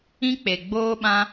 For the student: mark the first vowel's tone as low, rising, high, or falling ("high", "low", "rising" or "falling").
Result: high